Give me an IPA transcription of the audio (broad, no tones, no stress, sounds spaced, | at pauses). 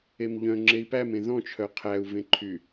e m ʎ œ̃ ŋ͡ǁ e i̯ p æ m ẽ ð ɔ̃ t͡ʃʰ œ qʰ æ u̯ v ẽ ǃʰ y